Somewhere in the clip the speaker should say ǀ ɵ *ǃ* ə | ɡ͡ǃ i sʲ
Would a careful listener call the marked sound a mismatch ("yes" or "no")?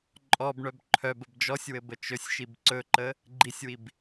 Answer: no